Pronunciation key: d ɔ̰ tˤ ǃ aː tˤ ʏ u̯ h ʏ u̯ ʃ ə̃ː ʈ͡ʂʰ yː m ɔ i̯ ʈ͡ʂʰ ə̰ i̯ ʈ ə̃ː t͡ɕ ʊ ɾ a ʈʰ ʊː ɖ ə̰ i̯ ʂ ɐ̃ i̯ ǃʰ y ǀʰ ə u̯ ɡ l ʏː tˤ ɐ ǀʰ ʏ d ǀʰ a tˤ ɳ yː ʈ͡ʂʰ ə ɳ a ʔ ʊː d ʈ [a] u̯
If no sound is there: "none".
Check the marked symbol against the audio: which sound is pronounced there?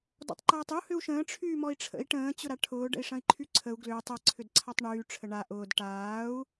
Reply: aː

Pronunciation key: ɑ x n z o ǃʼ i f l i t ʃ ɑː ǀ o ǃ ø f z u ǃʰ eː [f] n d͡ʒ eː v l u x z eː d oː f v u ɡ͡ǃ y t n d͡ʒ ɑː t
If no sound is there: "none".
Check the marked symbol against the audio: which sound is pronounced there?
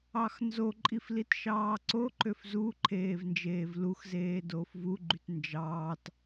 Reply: v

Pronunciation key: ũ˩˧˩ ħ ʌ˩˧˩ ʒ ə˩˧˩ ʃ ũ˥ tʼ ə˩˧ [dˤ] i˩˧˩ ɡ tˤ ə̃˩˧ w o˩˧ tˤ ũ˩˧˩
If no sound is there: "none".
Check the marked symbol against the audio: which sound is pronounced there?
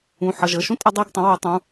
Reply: dˤ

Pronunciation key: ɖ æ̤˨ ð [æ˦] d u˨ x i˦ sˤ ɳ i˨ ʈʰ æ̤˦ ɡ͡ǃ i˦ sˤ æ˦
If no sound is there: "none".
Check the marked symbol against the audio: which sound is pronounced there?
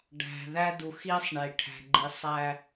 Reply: æ˦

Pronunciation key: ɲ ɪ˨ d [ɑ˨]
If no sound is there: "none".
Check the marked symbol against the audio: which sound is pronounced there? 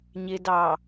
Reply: ɑ˨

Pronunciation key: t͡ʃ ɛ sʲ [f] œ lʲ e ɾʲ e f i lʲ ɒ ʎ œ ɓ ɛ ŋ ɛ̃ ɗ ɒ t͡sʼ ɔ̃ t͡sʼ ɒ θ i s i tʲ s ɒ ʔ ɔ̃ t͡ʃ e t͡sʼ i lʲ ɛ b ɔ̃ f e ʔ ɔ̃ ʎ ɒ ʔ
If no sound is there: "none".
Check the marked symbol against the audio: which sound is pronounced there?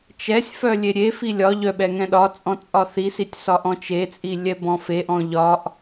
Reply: f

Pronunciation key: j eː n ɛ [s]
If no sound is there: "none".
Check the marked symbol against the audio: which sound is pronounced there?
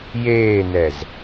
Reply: z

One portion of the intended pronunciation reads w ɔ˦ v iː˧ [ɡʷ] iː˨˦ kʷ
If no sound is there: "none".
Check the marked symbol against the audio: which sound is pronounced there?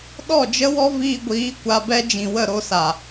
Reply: ɡʷ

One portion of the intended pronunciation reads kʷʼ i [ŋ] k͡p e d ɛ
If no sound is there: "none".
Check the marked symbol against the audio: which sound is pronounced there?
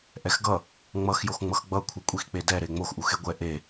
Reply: x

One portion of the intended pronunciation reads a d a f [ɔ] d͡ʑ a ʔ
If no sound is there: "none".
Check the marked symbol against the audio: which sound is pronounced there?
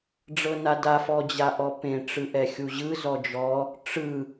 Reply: ɔ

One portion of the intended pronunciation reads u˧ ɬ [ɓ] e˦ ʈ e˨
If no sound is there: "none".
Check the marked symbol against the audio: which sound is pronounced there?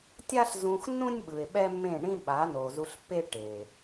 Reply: pː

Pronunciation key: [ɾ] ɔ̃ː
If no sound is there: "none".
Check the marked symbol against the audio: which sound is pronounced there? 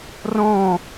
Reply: r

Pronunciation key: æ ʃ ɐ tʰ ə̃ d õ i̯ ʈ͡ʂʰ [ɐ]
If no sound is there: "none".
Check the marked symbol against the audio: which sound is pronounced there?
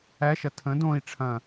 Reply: ɐ̃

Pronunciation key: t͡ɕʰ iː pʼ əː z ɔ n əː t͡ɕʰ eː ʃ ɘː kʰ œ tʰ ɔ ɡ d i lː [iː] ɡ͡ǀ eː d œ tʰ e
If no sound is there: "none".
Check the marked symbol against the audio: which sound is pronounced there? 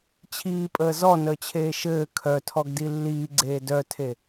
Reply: iː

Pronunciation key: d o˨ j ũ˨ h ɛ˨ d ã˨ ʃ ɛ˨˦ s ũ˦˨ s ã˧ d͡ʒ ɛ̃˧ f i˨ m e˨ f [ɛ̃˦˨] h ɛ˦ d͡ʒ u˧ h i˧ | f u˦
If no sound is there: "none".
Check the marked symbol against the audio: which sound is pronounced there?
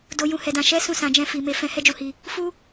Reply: ɛ̃˧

